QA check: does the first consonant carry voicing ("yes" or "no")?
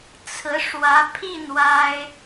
no